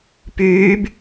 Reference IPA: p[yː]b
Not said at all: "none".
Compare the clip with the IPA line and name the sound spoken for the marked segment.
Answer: yː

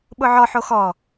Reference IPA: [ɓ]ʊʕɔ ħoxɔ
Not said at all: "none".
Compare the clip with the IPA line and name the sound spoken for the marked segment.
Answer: ɓ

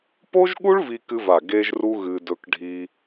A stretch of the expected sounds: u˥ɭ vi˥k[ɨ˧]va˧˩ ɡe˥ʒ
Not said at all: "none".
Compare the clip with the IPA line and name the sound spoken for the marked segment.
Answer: ɨ˥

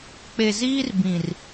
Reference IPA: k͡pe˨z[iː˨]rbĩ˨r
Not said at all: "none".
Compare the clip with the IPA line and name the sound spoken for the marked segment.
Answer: iː˦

